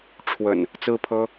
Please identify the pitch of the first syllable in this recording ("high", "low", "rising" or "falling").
low